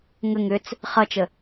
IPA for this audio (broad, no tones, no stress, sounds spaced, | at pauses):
ŋ ə ŋ ʏ t͡s | χ ʌ t͡ʃ ə